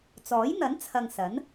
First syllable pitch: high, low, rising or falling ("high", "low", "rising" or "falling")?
rising